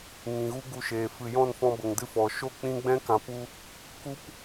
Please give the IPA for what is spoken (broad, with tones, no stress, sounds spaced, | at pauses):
ŋ ĩ˨ ɣ u˦ ɡ u˧ ʃ eː˨ f ɨ˨ j ɔ̃˦˨ n f ɔ̃˧ b ə˨ ŋ d ɨ˦ f ɔ˨ ʃ o˦˨ k͡p ĩ˧ ɡ͡b ɛ̃˦ k ã˨ p u˧ | k u˦ p